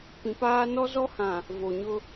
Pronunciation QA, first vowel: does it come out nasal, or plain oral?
nasal